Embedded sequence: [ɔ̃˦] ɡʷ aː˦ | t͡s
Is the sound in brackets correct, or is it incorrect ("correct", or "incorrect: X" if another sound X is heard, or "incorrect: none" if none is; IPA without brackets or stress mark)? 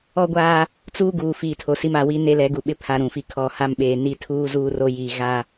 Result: incorrect: ɔ˦